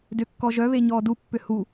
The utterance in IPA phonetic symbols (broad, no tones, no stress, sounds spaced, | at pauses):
d ʏ kː ɔ ʒ œ β e ɲ ɔː d u pː ʏ h u